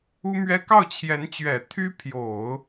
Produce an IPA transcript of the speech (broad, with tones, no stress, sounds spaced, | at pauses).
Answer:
u˥ m ɥ ɛ˥ k ɑ˥˩ ʊ̯ t͡ɕʰ j ɛ˧˥ n t͡ɕ ɥ ɛ˨˩ t̪ʰ y˥ pʰ j o˨˩˦ ʊ̯